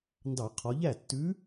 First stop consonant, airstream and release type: plain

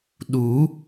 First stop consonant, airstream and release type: implosive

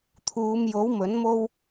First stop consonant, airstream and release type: aspirated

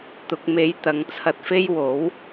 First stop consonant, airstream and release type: plain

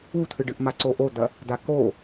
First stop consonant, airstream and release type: aspirated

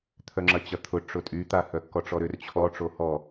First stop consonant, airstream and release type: aspirated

